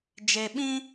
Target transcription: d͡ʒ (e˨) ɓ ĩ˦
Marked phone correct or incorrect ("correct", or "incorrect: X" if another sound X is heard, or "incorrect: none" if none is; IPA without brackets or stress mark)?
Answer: correct